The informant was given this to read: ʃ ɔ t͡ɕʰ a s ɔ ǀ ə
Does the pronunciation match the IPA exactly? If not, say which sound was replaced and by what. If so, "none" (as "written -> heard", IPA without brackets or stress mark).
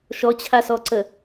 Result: none